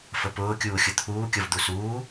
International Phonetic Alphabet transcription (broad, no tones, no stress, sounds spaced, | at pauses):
f ə p ʊː kʲ uː xʲ ʊ t̪ʰ uː kʲ ʌ v d̪ u s uː